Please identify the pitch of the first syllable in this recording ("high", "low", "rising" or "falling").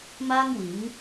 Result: high